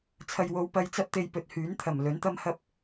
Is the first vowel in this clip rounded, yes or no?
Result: no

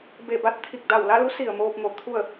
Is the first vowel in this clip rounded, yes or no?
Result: no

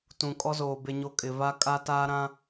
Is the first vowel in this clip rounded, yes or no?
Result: yes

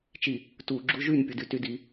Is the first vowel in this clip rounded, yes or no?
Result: no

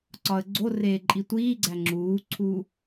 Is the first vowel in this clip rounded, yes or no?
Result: yes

